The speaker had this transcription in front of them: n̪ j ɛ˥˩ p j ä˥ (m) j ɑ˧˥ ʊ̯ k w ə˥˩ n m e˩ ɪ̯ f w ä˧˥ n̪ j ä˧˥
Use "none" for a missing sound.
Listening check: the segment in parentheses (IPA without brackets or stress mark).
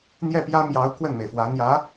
m